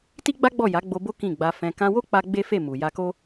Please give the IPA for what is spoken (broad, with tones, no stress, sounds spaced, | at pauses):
t i˦ ɡ͡b a˦ ɡ͡b ɔ˦˨ j a˨˦ ɡ͡b o˧ b o˦ k ĩ˦˨ ɡ͡b a˧ f ɛ̃˧ k ã˧ w o˦ k͡p a˧ ɡ͡b e˦ f e˦˨ m u˨ j a˧ k o˦